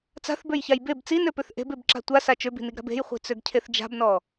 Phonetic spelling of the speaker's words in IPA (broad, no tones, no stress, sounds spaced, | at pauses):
t͡s a̤ θ b ø j ç a j b e b t͡s i n ø p ø θ ʔ e̤ b e b ǁ a̤ tʷ a s a t͡ʃ ø b i̤ n i ɡ ɾ a̤ b e̤ j χʷ i̤ t͡s ø ɡ cʰ e θ d͡ʒ a̤ b n ɔ